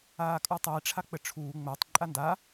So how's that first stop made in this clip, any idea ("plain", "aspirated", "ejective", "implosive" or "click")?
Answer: ejective